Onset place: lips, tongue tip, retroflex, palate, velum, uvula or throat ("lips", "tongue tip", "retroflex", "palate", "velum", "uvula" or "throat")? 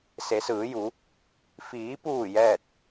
tongue tip